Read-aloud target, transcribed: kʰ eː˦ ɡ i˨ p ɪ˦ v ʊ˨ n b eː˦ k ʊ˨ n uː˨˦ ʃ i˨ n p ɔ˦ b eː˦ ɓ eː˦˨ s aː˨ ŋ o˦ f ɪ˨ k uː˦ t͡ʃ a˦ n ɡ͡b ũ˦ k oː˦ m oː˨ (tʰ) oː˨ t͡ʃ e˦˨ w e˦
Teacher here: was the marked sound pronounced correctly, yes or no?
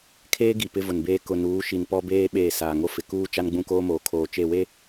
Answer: no